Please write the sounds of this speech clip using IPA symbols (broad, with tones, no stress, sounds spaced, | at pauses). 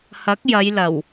h ɐ˨˥ k̚ j ɐ˨˧ j l ɐ˨˩ w